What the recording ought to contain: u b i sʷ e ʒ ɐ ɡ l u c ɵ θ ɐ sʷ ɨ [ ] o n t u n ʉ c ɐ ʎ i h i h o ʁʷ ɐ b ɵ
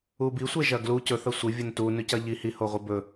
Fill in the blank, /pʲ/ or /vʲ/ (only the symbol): vʲ